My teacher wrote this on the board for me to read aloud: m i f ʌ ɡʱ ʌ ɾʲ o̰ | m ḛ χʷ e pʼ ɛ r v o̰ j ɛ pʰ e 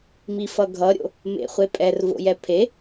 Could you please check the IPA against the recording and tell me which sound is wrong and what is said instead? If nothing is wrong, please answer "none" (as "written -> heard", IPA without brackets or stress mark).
none